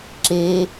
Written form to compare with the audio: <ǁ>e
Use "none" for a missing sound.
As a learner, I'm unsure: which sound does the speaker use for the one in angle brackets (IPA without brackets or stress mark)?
ǁ